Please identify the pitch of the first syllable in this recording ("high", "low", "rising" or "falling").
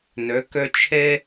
rising